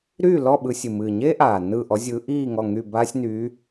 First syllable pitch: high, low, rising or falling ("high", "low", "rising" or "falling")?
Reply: falling